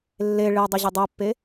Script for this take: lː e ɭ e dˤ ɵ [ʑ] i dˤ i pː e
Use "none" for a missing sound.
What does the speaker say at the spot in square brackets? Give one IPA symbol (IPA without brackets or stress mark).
ʑ